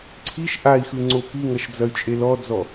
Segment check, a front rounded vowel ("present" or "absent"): present